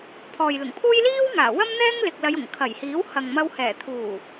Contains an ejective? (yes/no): no